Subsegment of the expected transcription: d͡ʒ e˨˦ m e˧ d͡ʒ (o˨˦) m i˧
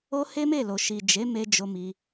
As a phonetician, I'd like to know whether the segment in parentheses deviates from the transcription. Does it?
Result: yes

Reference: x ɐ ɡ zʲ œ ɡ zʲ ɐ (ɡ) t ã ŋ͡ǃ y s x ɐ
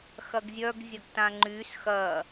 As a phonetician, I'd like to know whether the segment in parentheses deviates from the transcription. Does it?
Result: no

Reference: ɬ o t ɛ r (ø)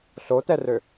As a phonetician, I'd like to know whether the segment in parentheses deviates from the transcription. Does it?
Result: no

